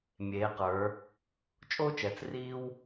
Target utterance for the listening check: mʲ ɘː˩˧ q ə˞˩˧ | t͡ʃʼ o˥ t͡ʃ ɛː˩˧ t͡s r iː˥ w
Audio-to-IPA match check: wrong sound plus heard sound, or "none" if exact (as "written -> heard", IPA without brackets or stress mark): ɘː˩˧ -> eː˩˧